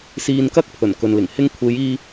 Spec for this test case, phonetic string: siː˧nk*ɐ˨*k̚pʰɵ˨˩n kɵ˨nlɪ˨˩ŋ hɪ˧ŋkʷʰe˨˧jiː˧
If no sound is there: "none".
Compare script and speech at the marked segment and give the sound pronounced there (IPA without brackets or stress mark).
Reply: ɐ˥